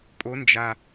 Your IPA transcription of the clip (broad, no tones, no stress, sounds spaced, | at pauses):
pʼ o n d͡ʒ a